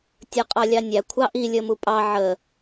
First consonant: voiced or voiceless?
voiceless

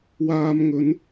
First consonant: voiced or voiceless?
voiced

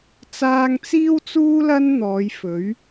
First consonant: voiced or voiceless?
voiceless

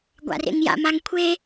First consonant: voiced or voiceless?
voiced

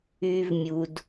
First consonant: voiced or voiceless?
voiced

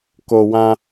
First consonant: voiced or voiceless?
voiceless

